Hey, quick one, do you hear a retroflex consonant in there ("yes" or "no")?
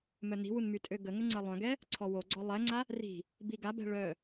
yes